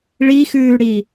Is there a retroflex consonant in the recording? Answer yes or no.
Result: yes